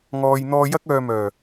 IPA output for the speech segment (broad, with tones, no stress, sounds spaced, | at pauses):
ŋ ɔː˧ j n̪ ɔː˧ j ɐ˥ k̚ œː˧ m œː˨˩